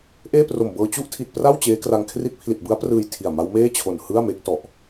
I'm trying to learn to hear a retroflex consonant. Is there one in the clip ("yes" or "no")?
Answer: no